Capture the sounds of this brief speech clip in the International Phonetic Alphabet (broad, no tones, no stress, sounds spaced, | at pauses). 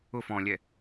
ʊ f ɔ̃ lʲ ɛ